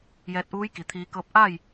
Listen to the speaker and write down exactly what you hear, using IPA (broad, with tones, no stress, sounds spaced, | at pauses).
j ɛː˧ t̚ ʔ uː˧˥ j k i˩˧ t̪ʰ iː˧˥ k ɤː˧˥ p̚ ʔ a˥˨ j